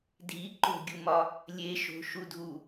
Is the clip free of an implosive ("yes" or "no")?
yes